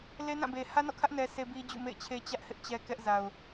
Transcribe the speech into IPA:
le˦nã˦˨be˨ hä˦nɔ̰˦˨kʰä˦ʔ nɛ˦se˦ bi˦d͡ʑṵ˦˨mḛ˦˨ɪ̯t͡ɕʰe˦ t͡ɕä˦ʔ hɪ˦ʔt͡ɕɛ˦kɛ˦ʔza˨ʊ̯

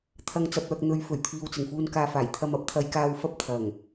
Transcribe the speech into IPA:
t̪ʰɐ˧ŋ t͡sɐ˨p̚œː˨k̚n̪ɵ˨˧ɥ fɵ˨˩ɥt̪ʰiː˨wt͡sɪ˨˩ŋfuː˧n kaː˨faː˨˩j t̪ʰɐ˨mɐ˨˥p̚t̪ʰɐ˨˧j kaː˧wfɐ˥p̚ t̪ʰɐ˨˩ŋ

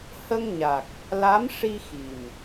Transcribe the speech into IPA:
hə˧ŋɲa˨˩k̚ | la˧˥mʂi˧ xi˨˩m

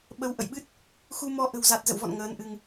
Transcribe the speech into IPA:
ɓə˨˦wʔə̰˧˨jɓɨ˦˥t̚ | xu˧mɔ˧ ʔə̤˨˩wza˨˩t̚ zə̰˧˨wvɔ̰˧˨n ŋəː˨˦nʔɨ˧ŋ

